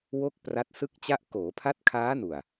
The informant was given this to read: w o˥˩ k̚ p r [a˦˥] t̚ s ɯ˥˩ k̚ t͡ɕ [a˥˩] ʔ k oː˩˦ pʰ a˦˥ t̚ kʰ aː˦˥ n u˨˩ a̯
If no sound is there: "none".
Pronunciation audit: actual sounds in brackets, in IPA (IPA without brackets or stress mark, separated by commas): a˦˥, a˥˩